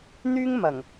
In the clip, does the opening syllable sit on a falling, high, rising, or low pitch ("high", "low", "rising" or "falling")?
high